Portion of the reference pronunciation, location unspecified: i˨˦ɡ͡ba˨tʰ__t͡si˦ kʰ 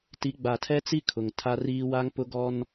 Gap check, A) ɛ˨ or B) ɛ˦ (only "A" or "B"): B